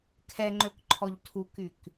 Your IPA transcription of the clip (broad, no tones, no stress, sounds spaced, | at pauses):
kʰ ɛ ŋ͡ǃ ø k ǃʰ ɔ ʎ tʰ u k y k